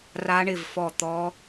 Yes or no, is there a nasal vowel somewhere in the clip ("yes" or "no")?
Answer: no